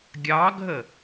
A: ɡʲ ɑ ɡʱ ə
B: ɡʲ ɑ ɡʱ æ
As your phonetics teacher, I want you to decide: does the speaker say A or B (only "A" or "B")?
A